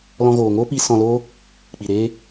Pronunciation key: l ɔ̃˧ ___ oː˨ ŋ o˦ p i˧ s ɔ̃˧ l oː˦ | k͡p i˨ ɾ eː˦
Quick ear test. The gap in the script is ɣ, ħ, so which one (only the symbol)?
ɣ